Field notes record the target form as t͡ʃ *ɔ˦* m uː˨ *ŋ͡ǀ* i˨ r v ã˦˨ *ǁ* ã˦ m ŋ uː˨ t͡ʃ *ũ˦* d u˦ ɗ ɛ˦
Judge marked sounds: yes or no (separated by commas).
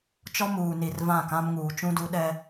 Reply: yes, no, no, yes